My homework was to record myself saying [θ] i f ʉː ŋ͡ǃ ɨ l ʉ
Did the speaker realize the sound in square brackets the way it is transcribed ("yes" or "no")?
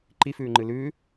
no